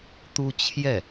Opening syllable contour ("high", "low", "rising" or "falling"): high